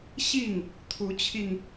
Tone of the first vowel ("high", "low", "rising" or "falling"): falling